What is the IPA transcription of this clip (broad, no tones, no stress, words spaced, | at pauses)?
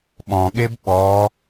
ɓɔ̃ɠeb ɓɔ